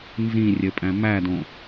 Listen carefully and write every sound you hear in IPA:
nzĩrʲɘpʼæ̃ mædõ

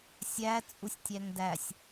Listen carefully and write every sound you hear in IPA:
sʲæ t͡sʼusʲtʲæŋdæsʲ

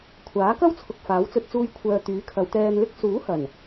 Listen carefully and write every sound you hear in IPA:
kʷʰaː˨˥kɐ˥wt͡sʰʊ˨k̚ faː˨˥wt͡sɵ˧t̚t͡suː˧j kʷʰœː˨ t̪yː˨˥kʰɐ˨˧wt̪ɛː˧nlɪ˥k̚ suː˨˥hɐ˨˩n

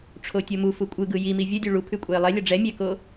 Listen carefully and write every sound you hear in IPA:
ʈ͡ʂʰotʲomufu kʷʼɯɡɯ jimi vʲʌdʲu ɭu pʰʉkʷʼɛɪ̯lˠɛlʲʌ ɖ͡ʐɛ mʲɛko

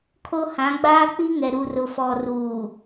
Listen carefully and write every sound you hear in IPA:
kʰo˦hã˨˦ ɡ͡baː˦k͡pi˦ŋɛ˨ ɾu˨rʊ˨ fɔ˨ ruː˨

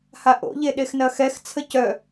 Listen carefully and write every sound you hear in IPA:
haʔo̰ʎe ɗexnɐxɛxt͡sʰə cœ

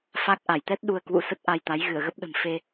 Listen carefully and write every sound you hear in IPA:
fa˦˥k̚ ʔa˧˩jt̪ɛ˦˥t̚ ɗu˧ə̯kwṵ˧˥ sə˦˥t̚ʔa˧jt̪a˨˦j ɣɨ˧˩ə̯ɣə˦˥p̚ ɗə̤˨˩m fe˧

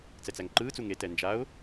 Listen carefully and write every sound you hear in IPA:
t͡sɛt͡sæŋǃɯːt͡su ŋe tɛnd͡ʒaʊ̯

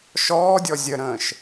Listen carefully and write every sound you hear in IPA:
ʃɔːdʲɔ zʲəɾə̃ːʃ

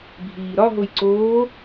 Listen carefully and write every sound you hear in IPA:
bʱiːɾɒɦoj ǀoː

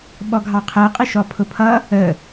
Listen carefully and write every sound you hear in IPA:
ɓɔɡʱɑqʰɜqʼɪ ʃɔpʰʊpʰʌ | ə

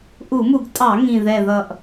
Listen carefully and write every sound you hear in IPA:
ʔu˧˩˧mu˧˩˧ɡtʼɑ˧˩˧ ŋĩ˨˩ ðɛ˨˩ðʌ˨˩ʔ

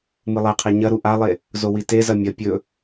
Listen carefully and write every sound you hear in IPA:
mɨlˠeqʰe ɲɐɾu ʔalˠe | zowitezɐ mʲɐ pʲɵ

